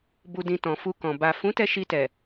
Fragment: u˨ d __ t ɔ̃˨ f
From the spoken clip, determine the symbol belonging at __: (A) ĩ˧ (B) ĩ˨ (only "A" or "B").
B